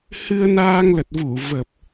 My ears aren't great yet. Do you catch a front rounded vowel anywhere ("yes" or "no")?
no